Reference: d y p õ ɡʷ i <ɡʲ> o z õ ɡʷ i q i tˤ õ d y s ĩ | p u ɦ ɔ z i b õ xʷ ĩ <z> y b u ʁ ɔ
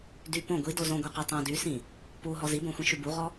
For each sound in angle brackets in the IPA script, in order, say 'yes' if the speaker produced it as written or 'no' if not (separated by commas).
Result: no, no